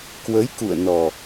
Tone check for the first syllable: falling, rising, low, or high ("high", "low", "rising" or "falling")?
rising